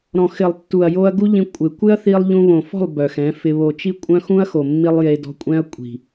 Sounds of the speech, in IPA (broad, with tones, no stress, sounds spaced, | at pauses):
ɾ ɔ̃˨ x ɪ˨ lˠ tː u˨ ɐ̯ j o˧ ɐ̯ ɡ u˦ ʎ ĩ˧ kʷʼ ɪ˨ kʷ ɪ˦ ɐ̯ θ i˧ lˠ ʎ ũ˧ β õ˨ f ɔ̤˦˨ lˠ b œ˨ x ɛ̃˨˦ f ɪ˧ β o˧ t͡ʃ i˦ kʷʼ œ̃˦ x ũ˦ ɐ̯ x o˨ mː i˧ lˠ j e˧ d ɔ̤˧ kʷʼ ɛ̃˦ ɐ̯ kʷʼ i̤˨